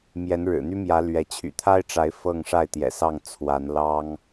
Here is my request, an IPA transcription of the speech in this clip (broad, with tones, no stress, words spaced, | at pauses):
mjɛ˨˦nɻɻ̩˨˩n̪y˦mjä˨˦ lɥɛ˨˦ t͡ɕʰy̰˨˩t̪ʰa˦ɪ̯ʈ͡ʂa˨˦ɪ̯ fɤ˥˨ŋʂa˥˨ɪ̯t̪jɛ̰˨˩sɑ˥˨ŋ t͡sʰwa˨˦nlɑ˦ŋ